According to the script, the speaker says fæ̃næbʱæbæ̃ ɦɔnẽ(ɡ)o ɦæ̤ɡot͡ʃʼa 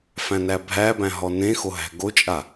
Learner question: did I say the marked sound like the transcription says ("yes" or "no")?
no